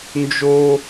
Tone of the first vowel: high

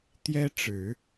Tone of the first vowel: high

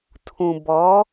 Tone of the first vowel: low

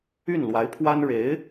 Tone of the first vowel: falling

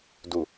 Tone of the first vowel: low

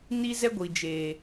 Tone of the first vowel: high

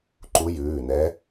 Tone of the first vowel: rising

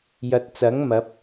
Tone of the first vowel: low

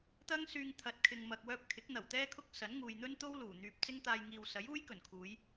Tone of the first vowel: high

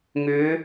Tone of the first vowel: rising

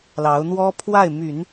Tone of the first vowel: rising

